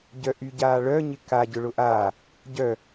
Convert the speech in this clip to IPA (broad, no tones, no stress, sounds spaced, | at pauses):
ɟ œ ʔ y ɟ aː ɭ œ ɲ ɪ k a ɟ ʊ ɭ ʊ ʔ aː | ɟ œ